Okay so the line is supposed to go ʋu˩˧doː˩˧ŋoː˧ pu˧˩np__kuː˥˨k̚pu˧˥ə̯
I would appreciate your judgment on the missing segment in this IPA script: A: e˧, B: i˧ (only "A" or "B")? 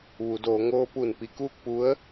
B